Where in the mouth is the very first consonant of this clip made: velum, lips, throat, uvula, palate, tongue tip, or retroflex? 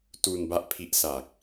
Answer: tongue tip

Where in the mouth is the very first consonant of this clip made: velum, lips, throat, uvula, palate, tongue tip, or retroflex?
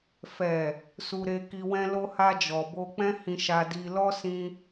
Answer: lips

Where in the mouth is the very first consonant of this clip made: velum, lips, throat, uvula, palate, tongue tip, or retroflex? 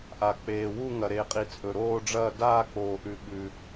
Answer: throat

